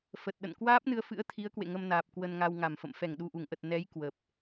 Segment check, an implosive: present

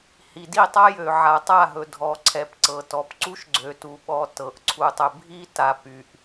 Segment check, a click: present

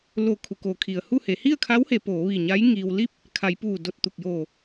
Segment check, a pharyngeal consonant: absent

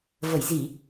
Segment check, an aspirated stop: absent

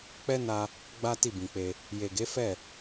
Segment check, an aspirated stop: absent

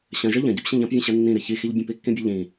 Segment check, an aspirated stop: absent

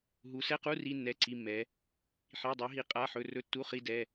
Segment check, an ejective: present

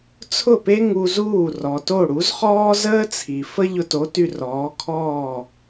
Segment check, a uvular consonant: present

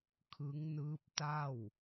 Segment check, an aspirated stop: present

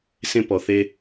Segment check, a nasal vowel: present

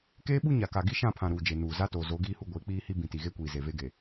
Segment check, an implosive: present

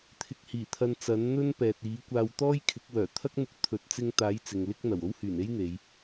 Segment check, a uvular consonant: absent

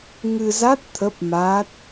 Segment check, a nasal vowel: absent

